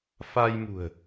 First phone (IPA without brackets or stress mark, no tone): f